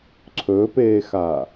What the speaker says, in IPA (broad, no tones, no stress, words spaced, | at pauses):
ǀʰɵːpeːxaː